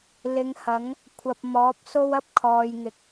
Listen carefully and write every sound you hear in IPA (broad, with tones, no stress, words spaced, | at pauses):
lɪ˨˧ŋhɐ˨˥ŋ | kʷʰɐ˨p̚mɔː˨˥p̚so˥w ɐ˥p̚ kʰɔː˨jŋɪ˨k̚